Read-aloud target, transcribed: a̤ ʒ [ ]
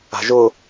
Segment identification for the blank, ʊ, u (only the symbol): ʊ